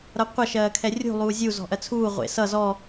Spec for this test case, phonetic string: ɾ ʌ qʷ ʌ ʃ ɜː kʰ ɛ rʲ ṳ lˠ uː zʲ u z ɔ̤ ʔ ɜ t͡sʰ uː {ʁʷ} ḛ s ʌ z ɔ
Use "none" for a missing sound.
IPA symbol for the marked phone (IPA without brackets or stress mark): ʁʷ